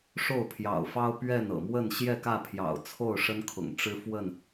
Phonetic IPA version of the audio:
ʂ o˥˨ ʊ̯ pʰ j ɑ̰˨˩ ʊ̯ f ɑ˦ ʊ̯ p ɥ ɛ˥˨ n ɤ̰˨˩ m w ə˥˨ n ɕ j ɛ˥˨ k ä˥˨ pʰ j ɑ̰˨˩ ʊ̯ t͡sʰ o˥˨ ʊ̯ ʂ ə˦ n kʰ ʊ̰˨˩ ŋ ʈ͡ʂ ɻ̩˦ f w ə˥˨ n

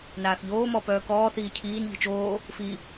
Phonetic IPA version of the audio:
n aː θ ʎ oː m ɔ p œː k ɔː θ iː cʰ iː n ʎ i̤ t͡ʃ oː | f i

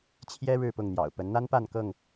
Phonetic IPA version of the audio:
t͡ɕʰ j ɛ˦ ɻ ɻ̩˥˨ p ʊ˥˨ ŋ n̪ j ɑ̰˨˩ ʊ̯ p ə˨˦ n n̪ a˦ n p a˥˨ n k ɤ˥˨ ŋ

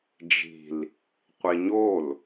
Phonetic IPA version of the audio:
d͡ʒ i̤ l | qʷ i ɲ o l

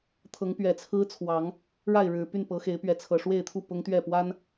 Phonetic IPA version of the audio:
t̪ʰ ɤ˨˦ ŋ p ɥ ɛ˨˩ t͡sʰ ɹ̩˦ t͡sʰ w ɑ˨˦ ŋ | ɻ a˥˨ ɪ̯ ɻ ɻ̩˨˩ p y˥˨ n p ɤ˨˦ x e˨˦ ɪ̯ p ɥ ɛ˨˦ t͡sʰ ɤ˨˩ ʂ w e˥˨ ɪ̯ t̪ʰ u˥˨ p ʊ˦ ŋ t̪ ɥ ɛ˥˨ p w a˦ n

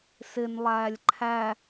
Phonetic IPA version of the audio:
s ɪ n lˠ æː lʲ ǃʰ æ

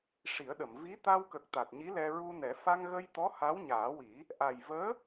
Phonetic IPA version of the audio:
ʂ i˨˩˦ ə̯ ɗ ə˨˩˨ m v i˧˥ t̪ a˧ w k ə˨˩ k̚ t̪ a˨˩ t̚ ɲ i˧˥ l ɛ˧ ɹ u˧ n ɛ˨˩˦ f a˧ ŋ ɣ ə˧ j t̪ ɔ˧˥ h a˧˥ w ɲ aː˨˩˦ w i˨˩˦ | ʔ a˨˩ j v əː˧˥

